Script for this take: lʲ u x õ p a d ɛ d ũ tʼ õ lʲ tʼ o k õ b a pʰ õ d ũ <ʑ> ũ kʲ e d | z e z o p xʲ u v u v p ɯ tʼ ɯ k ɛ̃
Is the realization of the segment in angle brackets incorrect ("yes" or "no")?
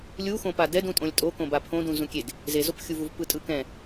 yes